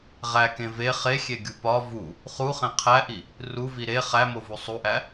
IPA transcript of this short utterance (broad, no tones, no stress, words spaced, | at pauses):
ʁækẽ ve χexʲeɡʲu pɒ vu | χuχẽ qʰæʔi | ruvi ɾe χæmovu sˤuʔæ